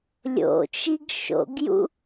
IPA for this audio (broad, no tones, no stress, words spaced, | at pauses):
lʲo̰t͡ʃiɡ ʃo̰ɡjṵ